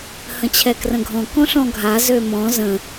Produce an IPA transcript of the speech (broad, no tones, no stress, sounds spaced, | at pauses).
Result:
h ə̃ t͡ɕʰ ɛ k r ə̃ ɡʱ ɔ̃ k ɔ̃ ɬ ɔ̃ ɡʱ a z ø m ɔ̃ z ə̃